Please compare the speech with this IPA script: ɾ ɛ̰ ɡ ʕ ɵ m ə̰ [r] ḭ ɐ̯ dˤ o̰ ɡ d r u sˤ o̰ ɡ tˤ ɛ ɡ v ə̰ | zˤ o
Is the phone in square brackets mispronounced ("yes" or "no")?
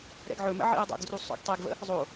yes